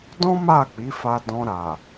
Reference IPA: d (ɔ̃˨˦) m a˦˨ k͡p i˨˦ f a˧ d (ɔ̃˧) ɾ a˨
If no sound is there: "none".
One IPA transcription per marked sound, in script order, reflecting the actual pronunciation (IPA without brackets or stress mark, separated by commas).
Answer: ɔ̃˦, ɔ̃˧